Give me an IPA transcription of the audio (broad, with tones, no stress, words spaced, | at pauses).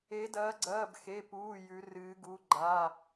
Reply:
e˧˥dɐː˧˥ɡ͡ǀɐː˧˥˧b xe˧˥˧puː˧˥˧ jʉ˧˥rɨː˧˥ɡu˧˥˧ɡ͡ǃa˧˥˧